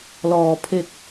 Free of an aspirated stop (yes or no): no